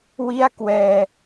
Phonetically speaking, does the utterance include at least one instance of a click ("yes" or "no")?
no